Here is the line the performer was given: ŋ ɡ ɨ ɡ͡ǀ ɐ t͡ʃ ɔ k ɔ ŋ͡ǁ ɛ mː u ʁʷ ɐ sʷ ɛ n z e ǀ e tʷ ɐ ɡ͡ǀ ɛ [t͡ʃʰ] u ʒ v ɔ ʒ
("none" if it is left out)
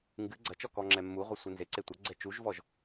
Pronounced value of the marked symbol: t͡ʃ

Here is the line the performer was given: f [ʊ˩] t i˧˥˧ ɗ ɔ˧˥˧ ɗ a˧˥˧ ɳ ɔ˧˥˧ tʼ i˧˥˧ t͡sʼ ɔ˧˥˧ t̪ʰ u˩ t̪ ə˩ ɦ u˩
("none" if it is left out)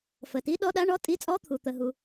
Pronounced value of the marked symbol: ə˩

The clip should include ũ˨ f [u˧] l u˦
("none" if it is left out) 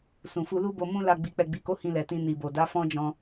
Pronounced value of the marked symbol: u˧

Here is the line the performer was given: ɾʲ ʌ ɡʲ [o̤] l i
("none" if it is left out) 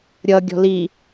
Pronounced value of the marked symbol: ɔ̤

